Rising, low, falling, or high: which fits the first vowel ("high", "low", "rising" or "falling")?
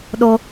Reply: high